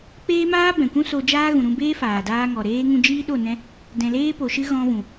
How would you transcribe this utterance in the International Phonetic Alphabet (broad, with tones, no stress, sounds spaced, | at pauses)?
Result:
k͡p eː˦ m aː˦ b ɛ̃˨ kʷ ũ˦ s o˧ d͡ʒ aː˦ ɣ ũ˨ ɾ ũ˧ b eː˦ f aː˨ d aː˧ ŋ ɔ˨ ɾ eː˦ ŋ ũ˧ d͡ʒ iː˦ ɗ o˦˨ n ɛ̃˦ | d ɛ̃˨ l eː˧ p o˨ ʃ ɨ˧ ɣ ɔ̃˧ v ũ˨